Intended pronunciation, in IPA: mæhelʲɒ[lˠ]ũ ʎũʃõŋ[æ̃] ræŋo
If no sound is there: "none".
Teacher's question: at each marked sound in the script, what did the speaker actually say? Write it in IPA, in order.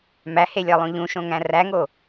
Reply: lˠ, æ̃

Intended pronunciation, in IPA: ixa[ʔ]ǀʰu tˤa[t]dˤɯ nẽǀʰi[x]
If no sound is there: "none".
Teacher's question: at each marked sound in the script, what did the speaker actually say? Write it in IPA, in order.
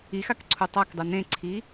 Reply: k, k, none

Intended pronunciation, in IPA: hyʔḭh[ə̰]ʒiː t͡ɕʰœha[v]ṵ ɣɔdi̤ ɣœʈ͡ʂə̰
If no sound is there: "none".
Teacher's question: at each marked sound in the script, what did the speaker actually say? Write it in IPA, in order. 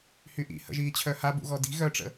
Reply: ə̰, b

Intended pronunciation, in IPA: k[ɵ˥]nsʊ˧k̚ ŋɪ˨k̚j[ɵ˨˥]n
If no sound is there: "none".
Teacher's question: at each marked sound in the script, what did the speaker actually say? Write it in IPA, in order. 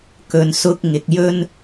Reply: ɵ˨, ɵ˥

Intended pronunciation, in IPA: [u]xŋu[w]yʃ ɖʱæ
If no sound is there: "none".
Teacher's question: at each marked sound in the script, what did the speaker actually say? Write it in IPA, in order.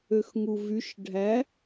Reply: ø, v

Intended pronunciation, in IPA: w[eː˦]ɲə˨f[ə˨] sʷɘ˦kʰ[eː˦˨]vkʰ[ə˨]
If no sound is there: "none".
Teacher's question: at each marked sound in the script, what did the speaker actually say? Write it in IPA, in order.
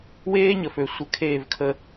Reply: eː˦, ø˨, eː˦˨, ə˦

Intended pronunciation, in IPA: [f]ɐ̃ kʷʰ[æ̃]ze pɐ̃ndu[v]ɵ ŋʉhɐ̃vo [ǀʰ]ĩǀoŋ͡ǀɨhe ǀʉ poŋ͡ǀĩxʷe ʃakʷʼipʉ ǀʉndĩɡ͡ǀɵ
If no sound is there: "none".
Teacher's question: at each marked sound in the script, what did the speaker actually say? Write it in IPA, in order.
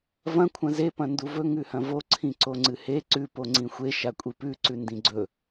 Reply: v, ɐ̃, v, ǀʰ

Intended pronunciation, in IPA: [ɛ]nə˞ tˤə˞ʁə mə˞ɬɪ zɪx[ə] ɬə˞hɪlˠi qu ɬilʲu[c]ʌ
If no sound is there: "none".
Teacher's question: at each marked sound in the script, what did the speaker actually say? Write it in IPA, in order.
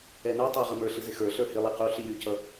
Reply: ɛ, ə˞, c

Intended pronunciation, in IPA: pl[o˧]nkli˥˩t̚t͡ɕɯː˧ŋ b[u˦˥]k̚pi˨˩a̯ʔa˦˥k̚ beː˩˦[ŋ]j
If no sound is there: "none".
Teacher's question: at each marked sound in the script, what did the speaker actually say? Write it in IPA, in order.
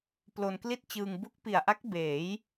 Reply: o˧, u˦˥, none

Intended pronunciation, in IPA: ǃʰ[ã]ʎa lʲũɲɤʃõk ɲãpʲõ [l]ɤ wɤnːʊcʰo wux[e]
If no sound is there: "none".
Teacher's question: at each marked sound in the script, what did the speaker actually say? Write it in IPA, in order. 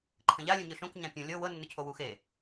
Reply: ə̃, lʲ, e

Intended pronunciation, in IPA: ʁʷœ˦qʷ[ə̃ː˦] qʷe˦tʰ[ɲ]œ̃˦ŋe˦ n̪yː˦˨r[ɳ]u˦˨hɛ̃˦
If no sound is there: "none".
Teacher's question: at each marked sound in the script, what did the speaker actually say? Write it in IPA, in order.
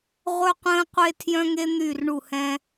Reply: ə̃ː˦, j, ɳ

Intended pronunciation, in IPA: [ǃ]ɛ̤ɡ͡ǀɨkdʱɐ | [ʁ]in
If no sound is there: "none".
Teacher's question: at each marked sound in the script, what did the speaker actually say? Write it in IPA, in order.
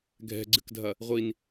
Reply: ɡʱ, ʁʷ

